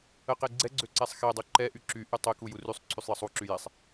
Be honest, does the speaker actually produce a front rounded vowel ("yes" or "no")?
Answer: yes